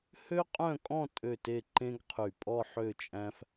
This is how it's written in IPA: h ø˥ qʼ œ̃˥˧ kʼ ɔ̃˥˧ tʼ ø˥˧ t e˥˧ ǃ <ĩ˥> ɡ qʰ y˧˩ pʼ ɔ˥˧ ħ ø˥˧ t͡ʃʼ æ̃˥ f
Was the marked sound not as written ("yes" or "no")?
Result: yes